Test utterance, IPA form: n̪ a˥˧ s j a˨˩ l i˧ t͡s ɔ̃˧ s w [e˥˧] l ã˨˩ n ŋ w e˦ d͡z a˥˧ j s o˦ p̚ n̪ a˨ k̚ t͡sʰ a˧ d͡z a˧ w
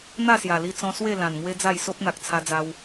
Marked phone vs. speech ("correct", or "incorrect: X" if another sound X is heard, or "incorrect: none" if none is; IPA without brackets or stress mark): correct